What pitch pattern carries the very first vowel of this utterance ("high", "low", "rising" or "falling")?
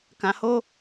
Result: low